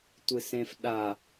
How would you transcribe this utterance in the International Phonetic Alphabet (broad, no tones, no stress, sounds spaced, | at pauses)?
tʷ ɨ s ẽ f ɗ a